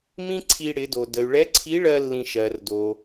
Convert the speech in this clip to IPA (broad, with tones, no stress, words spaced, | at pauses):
mĩ˥ǀʰi˧ ɽɪ˩˧do˩ də˩y̯ɭɛ˧˥ǀʰi˧˥ ɭɜ˥lːĩ˧ ʃɜ˩rdo˩